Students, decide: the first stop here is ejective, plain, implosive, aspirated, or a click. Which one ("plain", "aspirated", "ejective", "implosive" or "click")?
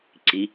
click